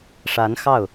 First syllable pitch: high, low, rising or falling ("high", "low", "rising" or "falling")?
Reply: rising